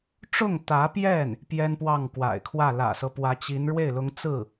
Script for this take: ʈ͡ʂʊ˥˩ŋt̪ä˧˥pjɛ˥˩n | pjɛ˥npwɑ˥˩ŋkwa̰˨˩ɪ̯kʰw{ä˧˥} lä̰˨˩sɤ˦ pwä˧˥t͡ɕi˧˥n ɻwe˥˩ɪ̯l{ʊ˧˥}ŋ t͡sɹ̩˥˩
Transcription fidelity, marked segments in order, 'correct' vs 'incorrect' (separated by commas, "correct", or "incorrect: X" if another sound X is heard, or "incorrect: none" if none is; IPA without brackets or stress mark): incorrect: ä˥˩, correct